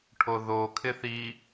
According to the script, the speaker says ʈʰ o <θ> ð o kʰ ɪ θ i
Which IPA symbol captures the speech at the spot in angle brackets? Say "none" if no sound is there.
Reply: none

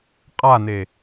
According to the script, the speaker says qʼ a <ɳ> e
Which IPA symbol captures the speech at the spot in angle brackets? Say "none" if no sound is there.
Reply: n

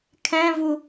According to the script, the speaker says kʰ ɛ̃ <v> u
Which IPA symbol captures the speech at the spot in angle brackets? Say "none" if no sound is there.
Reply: v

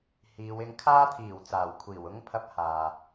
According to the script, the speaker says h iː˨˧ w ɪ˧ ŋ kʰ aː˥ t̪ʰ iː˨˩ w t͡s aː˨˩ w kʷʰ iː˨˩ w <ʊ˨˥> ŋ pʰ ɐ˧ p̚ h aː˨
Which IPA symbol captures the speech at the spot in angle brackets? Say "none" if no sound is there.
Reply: ʊ˥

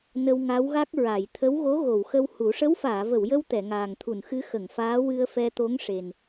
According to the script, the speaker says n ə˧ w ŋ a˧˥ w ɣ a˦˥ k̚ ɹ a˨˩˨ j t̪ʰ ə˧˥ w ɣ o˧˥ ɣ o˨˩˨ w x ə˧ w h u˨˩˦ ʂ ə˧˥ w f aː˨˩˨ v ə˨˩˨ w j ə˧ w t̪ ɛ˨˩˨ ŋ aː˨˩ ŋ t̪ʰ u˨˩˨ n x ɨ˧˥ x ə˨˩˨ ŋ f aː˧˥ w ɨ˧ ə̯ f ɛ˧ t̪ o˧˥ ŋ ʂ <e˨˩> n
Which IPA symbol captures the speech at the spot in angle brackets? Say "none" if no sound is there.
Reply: e˨˩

